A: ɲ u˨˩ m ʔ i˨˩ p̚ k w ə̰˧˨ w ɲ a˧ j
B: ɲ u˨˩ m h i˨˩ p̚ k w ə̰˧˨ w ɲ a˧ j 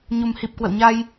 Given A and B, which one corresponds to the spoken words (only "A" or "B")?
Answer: B